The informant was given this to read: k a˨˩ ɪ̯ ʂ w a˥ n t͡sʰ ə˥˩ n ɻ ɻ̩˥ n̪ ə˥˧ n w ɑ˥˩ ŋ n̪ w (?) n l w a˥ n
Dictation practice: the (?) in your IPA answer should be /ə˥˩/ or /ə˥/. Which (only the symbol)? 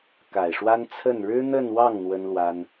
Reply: ə˥